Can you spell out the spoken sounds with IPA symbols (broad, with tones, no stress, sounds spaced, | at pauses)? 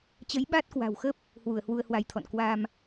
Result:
t͡ɕ ə˨˦ j ɓ a˦˥ t̚ k w a̤˨˩ w x ə˦˥ p̚ | h w u˧˩ ə̯ h w u˧ ə̯ h w a˧ j t̪ʰ ɔ̰˧˨ n k w a˧ m